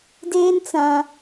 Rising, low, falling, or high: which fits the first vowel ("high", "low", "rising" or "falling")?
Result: high